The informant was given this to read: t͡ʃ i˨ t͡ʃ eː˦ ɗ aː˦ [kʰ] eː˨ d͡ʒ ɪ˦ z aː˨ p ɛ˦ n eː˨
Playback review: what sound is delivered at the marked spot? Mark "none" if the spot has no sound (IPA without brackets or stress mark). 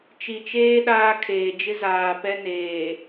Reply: kʰ